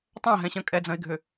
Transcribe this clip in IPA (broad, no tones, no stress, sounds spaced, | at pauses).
tˤ ã ɦ ɛ̃ ɕ ɐ̃ kʼ ɛ d͡z ɐ̃ ɪ̯ ɡʱ ʏ